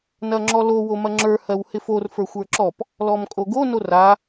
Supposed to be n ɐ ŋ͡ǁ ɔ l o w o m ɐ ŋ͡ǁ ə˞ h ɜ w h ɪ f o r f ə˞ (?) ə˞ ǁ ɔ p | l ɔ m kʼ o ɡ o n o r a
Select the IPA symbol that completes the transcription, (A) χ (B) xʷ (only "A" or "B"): B